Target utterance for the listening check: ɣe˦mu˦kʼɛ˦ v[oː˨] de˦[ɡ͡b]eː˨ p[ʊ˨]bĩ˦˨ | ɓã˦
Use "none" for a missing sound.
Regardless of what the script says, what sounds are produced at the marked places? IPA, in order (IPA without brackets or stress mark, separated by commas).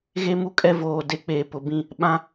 oː˨, k͡p, ʊ˨